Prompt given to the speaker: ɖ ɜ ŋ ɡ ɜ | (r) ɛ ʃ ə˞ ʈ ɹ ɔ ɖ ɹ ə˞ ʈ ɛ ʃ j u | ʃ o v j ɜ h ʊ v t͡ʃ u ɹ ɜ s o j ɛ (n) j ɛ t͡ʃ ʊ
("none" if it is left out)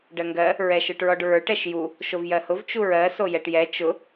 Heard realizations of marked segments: ɹ, ʈ

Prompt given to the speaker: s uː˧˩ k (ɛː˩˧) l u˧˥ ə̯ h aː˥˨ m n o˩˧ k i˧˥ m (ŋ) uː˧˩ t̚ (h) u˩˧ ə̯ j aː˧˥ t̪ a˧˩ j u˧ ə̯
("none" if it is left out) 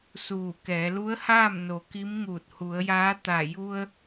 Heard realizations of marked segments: ɛː˩˧, ŋ, h

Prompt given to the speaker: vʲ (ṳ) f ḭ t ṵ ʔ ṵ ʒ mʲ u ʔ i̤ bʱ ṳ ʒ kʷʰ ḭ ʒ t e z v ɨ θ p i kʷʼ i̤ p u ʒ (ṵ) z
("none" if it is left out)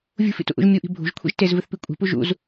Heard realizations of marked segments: ṳ, ṵ

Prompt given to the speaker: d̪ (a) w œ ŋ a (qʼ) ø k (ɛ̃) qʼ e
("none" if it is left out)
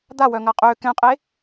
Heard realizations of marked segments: a, qʼ, ɛ̃

